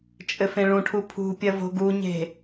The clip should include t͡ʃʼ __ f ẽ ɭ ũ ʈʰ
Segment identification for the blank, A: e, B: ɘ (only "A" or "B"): B